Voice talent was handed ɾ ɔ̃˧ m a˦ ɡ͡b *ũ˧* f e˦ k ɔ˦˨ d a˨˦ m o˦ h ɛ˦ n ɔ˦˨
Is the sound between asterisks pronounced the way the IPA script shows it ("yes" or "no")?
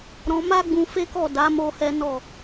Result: yes